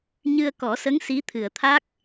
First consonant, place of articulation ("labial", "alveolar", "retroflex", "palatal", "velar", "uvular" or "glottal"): palatal